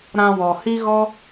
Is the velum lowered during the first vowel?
yes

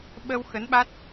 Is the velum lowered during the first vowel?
no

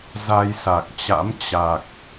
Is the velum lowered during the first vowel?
no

